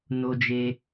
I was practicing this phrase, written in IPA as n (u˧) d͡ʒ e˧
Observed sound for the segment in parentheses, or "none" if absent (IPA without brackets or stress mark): o˧